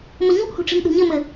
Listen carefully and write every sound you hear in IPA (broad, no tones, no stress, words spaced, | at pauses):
məɲuʔhṳʈ͡ʂi̤m ɗṳɲɘmɘ